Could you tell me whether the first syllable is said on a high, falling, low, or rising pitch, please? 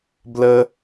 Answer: high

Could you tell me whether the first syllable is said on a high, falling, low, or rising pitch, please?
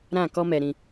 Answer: falling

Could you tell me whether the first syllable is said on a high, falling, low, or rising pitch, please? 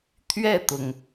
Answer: falling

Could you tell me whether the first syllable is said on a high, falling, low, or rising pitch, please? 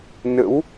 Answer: rising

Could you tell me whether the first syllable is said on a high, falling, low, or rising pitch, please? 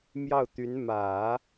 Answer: falling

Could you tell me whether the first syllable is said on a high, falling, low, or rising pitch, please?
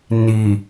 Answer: low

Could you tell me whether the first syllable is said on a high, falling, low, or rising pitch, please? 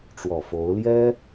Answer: low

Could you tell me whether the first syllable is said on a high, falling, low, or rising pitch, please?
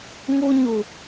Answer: high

